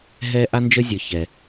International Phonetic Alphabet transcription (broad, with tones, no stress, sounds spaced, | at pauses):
ɦ ɛ˥ ʔ a˥ n d͡ʒ ə˥ zʲ ə˞˧ ç ɛ˧